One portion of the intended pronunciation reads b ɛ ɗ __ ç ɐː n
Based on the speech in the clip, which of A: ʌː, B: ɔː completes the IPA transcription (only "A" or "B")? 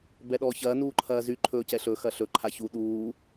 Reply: B